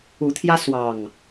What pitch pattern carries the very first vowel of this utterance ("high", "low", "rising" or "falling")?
rising